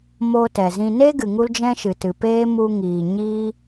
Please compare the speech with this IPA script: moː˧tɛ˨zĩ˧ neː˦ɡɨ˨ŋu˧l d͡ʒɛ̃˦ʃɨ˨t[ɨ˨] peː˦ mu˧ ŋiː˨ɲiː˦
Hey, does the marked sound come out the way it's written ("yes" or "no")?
yes